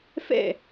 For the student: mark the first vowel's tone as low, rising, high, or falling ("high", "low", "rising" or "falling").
falling